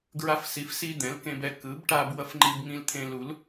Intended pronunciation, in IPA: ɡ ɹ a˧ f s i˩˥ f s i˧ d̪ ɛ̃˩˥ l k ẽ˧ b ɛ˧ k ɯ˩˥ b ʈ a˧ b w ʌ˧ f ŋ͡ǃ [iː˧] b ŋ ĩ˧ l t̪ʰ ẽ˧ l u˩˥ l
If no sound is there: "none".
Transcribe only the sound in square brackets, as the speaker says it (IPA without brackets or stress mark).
i˧